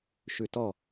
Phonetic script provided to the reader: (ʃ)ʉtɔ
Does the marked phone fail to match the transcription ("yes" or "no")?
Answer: no